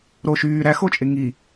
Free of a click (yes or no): yes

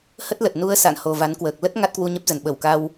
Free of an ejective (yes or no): yes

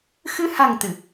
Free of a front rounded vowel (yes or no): yes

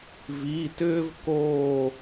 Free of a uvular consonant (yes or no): yes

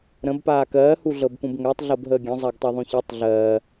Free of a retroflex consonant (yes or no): yes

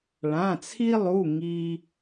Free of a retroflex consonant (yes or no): no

